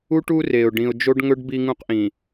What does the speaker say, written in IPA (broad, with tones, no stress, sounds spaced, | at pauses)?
u˦ ʈ u˦ r e˨ ʊ̯ ɖ ĩ˨ ʊ̯ d͡ʒ o˦ ɖ ŋ ɵ˦ ɖ b i˦ ŋ ũ˦ q ʔ ĩ˨